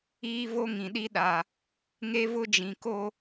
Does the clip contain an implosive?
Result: yes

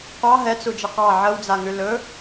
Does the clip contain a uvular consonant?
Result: yes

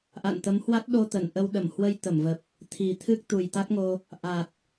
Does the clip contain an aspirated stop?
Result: yes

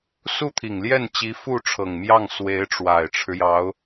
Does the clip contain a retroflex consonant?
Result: yes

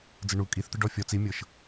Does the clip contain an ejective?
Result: yes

